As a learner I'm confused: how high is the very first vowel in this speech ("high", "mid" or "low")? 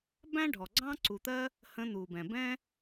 low